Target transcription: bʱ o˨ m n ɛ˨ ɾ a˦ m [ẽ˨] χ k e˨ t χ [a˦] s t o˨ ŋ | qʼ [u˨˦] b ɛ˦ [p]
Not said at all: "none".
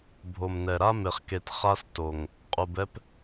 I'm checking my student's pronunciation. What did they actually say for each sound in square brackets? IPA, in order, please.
e˨, a˦, u˨, p

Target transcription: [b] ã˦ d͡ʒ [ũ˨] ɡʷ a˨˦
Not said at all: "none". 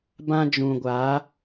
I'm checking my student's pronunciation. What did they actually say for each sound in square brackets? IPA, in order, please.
b, ũ˨

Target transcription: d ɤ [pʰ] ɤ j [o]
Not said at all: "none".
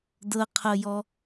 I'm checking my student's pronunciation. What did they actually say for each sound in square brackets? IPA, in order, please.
qʰ, ɔ

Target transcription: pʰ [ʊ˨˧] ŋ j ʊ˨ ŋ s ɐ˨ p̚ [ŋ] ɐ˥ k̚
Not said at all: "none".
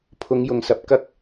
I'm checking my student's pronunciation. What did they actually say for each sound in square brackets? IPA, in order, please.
ʊ˨˧, k

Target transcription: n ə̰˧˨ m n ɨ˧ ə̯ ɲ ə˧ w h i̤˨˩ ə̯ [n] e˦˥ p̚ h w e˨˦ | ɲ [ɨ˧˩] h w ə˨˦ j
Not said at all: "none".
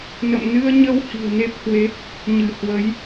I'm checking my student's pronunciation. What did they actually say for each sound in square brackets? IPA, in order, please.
n, ɨ˧˩

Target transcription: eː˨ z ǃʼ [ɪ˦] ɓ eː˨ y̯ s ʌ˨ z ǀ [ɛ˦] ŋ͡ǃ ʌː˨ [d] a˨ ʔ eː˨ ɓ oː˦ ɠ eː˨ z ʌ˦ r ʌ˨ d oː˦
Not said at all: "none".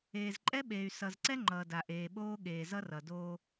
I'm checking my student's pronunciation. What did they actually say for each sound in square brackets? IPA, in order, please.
ɛ˦, ɛ˦, d

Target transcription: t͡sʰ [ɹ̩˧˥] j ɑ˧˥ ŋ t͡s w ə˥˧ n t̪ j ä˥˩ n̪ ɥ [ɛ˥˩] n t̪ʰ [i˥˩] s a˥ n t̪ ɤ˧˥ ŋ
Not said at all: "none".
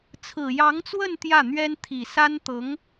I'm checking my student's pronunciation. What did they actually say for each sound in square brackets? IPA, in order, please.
ɹ̩˨˩, ɛ˥, i˨˩

